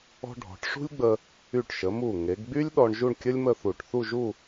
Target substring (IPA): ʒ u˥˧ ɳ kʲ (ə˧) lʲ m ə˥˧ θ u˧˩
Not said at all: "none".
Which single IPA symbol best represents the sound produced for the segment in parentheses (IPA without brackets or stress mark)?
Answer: ə˥